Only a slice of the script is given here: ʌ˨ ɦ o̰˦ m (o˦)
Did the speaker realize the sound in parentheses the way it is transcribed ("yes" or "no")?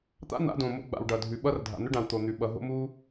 no